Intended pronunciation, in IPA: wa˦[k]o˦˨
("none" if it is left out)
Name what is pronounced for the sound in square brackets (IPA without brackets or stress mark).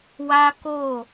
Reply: k